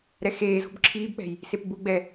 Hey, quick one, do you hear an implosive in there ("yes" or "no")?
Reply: no